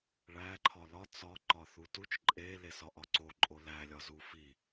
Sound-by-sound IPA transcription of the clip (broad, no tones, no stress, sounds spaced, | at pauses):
ɭ æ ǃʰ ɒ l ɒ t͡s ɒ ǃ ɒ θ u t u t͡ʃ ǃʼ e l e s ɒ ʔ ɒ ǀ o ǃʼ o l æ lʲ ɒ z u f i